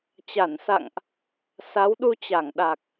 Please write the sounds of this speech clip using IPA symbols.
t͡ɕ a˧˩ n s a̰˧˨ ŋ ʔ | s a˨˦ w ɗ u˧ t͡ɕ a˧˩ ŋ ɗ a˨˩ k̚

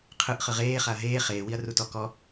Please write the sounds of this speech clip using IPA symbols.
qʰ ɯ ʔ χ ɯ ʁ eː χ a ɐ̯ ɦ eː χ eː w i ɐ̯ r u t ɔ k ɔ

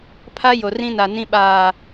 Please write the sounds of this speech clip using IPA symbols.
pʰ a˦ j o˨ r ĩ˦ n a˨ n ĩ˦ ɓ aː˨

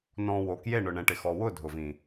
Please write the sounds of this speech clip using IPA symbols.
n ɔ̃˨ w o˨ k j e˦˨ ɳ ʊ˨ ɳ ɛ̃˨ ʈ ɪ˨ x ɔ˨ w ʊ˦˨ dʱ ʊ˨ v ĩ˨

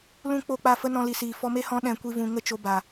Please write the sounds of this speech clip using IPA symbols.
l ũ˧ k͡p o˦˨ k͡p a˦˨ f ə˦ n ɔ̃˧ l i˧ s iː˨ f ɔ˧ m e˦ h ɔ̃˧ ɗ ɛ̃˨ kʷ i˧ v ũ˨ ŋ ə˦˨ t͡ʃ o˧ b a˨

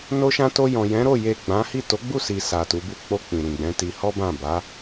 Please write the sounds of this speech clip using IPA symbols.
n o˧ ʃ ã˧ t o˧ j ɔ̃˨ j ɛ̃˨˦ ɾ o˦˨ j e˨ ɡ͡b ã˨˦ h i˦˨ t o˨˦ ɡ͡b u˦˨ s i˨ s a˨ t u˨˦ b u˦˨ k͡p o˧ k͡p ĩ˨ ɾ ĩ˨ ɡ͡b ɛ̃˨˦ t i˧ h ɔ˦ b ã˦˨ b a˨˦

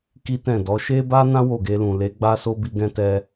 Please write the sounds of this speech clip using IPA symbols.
k i˦ t ɛ̃˦˨ d ɔ˨˦ ʃ e˦ b a˦ n ã˦ w o˦˨ ɡ e˧ l ũ˨ l e˨˦ ɡ͡b a˦ s o˦ b i˧ ɡ ɛ̃˦ t ɛ˦

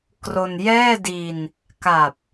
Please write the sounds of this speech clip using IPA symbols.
k r o˧ n j ɛː˥˩ d i˧ n | k a˨˩ p̚

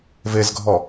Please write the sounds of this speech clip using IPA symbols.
v e z ɡʱ ɔ

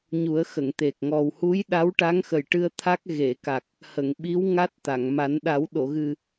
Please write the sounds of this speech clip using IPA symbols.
ɲ u˨˩˦ ə̯ x ə˨˩˨ ŋ t̪ e˨˩ k̚ ŋ ɔ˨˩ w h u˧˥ j ɗ a˧˥ w ʈ a˧˥ ŋ x ə˨˩ j ʈ ɨ˧ ə̯ t̪ʰ a˦˥ k̚ ɣ e˨˩˨ k a˨˩ k̚ | h ə˨˩˨ ŋ ɓ i˧˥ w ŋ a˦˥ t̚ t̪ a˨˩˨ ŋ m a˨˩˦ n ɗ a˨˩˦ w ɗ o˨˩˨ ɣ ɨ˨˩

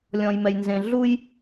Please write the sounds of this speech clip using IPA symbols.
lʲ ɔ̃˧ j m ɛ˧ j n z ẽ˧ ɮ u˥ j

